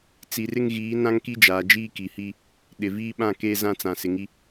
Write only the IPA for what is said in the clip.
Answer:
t͡si˨rɪ˦ŋɣiː˨˦ nã˦ŋki˦d͡ʒaː˨d͡ʒiː˦ ki˨hi˦ | ɗɪ˨viː˦ ɓã˦˨keː˦zã˦ t͡sã˨ sɪ˨ŋi˦

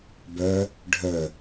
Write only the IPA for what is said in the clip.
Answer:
bœ | ɖʱœ

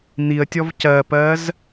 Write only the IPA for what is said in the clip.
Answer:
n̪iə̯tʲɔv cɜpɜz

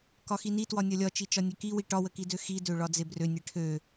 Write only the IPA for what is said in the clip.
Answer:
kɒxinitwɒ nʲɒlʲɒt͡ʃi t͡ʃɒnʲøkiwi ʈɒwəkidø xidøɭɒ d͡zebrø nʲeʈʰø

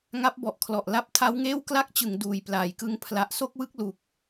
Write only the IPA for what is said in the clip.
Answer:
ŋa˦˥p̚bɔ˨˩ʔkʰlɔ˨˩ʔ la˦˥p̚tʰa˦˥wŋeː˥˩w kla˥˩k̚t͡ɕɯ˩˦ŋ duː˨˩jplaː˨˩jkɯ˦˥ŋ pʰla˨˩ʔso˥˩k̚wɯ˦˥k̚lu˨˩k̚

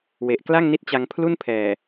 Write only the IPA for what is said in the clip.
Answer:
we˨˩ʔkla˥˩ŋni˦˥t̚t͡ɕa˧ŋ pʰlu˥˩npʰɛː˨˩

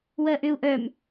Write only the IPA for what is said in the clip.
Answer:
wɜʔʏu̯ ʔœm

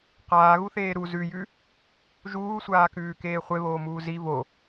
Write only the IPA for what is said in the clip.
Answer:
qaːɣuθeː ɾu zʉjʉ | ʒuːsʷaːkʉːkeː χʷeβoːmuː zi vo

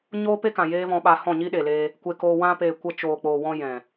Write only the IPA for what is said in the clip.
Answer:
ɲoː˦pe˦kã˨ jeː˦vɔ̃˧ɓa˧ hɔ̃˦˨ɲiː˦ɗeː˨leː˧ | kʷe˧koː˧ wã˧peː˨ kʷə˧t͡ʃoː˨k͡poː˨wɔ̃˧ jɛ̃˨

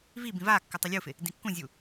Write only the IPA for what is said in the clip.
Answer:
vibĩ vakːʏ tˤolʲufɪ | dĩkːũzʲu

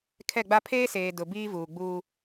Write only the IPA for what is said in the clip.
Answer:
kʰɛ˦˨ɡ͡ba˦ pʰeː˦seː˨ dʊ˨ biː˦vuː˨ ɡ͡buː˦

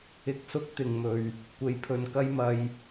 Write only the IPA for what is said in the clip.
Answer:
ɪ˧k̚sʊ˥k̚t̪ɪ˨ŋmɵ˨ɥ | kʷe˨jpʰɵ˨nkɐ˥jmɐ˧j

